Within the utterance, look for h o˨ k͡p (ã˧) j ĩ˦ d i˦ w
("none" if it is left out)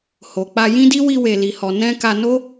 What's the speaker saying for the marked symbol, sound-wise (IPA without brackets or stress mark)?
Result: a˧